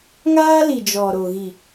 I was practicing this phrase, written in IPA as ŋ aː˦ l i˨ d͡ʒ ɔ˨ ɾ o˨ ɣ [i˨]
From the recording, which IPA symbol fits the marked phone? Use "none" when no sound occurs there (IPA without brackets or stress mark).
i˨